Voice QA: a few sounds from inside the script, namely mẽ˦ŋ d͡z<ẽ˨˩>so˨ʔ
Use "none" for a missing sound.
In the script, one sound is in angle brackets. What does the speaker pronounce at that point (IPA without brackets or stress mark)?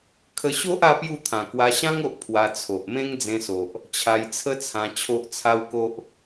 ẽ˧